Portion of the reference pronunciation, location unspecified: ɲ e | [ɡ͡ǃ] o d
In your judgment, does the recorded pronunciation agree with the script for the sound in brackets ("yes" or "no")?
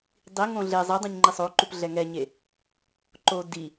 no